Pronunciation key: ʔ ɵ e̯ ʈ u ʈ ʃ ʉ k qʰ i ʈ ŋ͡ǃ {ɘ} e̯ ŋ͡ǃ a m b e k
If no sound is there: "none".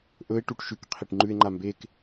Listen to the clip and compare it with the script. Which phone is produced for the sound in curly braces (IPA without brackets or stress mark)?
ʉ